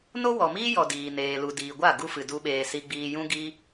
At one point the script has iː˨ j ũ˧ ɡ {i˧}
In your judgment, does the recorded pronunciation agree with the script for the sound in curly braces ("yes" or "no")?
yes